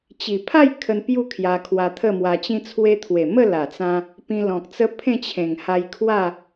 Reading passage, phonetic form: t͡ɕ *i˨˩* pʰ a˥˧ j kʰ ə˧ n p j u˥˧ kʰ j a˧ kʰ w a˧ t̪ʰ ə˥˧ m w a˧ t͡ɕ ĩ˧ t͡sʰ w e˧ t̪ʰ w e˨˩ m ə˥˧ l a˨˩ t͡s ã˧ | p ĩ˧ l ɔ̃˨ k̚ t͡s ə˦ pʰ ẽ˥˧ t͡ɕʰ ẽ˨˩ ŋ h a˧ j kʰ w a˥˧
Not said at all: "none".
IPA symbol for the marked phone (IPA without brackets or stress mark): i˨˩